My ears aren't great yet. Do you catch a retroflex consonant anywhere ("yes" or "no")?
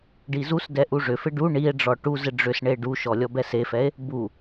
yes